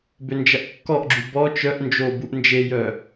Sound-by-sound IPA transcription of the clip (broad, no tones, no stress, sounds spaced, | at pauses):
b ø n d͡ʒ ɐ ʔ kː ɔ ʔ ɡ͡ǁ u b ɔ t͡ʃ œ ʔ n d͡ʒ o b u ʔ n d͡ʒ e j œ